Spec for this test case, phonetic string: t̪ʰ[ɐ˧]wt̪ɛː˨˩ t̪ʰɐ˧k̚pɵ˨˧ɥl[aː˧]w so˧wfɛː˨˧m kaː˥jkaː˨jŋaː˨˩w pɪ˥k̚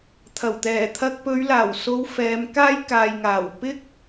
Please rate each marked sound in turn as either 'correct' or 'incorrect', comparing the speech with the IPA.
incorrect: ɐ˨˩, incorrect: aː˨˩

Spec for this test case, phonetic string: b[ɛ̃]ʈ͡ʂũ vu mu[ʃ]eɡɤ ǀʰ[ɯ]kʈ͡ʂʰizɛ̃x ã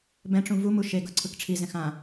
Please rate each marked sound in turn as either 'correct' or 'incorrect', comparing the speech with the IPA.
correct, correct, correct

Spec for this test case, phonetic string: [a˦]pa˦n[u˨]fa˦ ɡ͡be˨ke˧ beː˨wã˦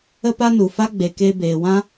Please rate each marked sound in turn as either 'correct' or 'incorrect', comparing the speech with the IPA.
incorrect: ə˦, correct

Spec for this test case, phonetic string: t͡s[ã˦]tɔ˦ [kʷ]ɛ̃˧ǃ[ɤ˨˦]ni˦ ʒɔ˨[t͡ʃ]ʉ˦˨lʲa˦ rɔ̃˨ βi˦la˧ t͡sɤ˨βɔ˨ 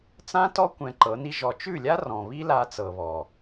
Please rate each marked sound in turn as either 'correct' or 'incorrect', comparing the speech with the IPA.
correct, correct, correct, correct

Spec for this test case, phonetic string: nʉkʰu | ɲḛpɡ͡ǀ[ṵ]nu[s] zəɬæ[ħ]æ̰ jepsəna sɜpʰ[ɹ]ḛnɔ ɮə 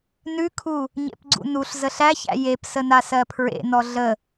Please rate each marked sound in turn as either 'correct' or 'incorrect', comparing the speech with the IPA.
correct, incorrect: ɬ, incorrect: ç, correct

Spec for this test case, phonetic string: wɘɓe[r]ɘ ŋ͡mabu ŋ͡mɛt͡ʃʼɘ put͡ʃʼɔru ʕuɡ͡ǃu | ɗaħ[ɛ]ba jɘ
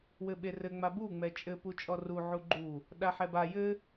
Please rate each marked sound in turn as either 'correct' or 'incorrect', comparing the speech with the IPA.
correct, correct

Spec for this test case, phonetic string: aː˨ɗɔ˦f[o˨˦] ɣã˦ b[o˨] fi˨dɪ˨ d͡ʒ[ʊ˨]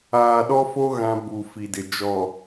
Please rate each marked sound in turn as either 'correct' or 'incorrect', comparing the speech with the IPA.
incorrect: o˦, incorrect: u˨, incorrect: ɔ˨

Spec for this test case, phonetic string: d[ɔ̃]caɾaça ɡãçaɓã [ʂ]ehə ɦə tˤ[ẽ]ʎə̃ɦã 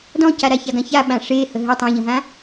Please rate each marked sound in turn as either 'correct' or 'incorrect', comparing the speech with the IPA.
correct, correct, correct

